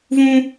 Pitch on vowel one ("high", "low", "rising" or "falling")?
high